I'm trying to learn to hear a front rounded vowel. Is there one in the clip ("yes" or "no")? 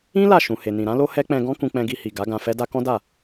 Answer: no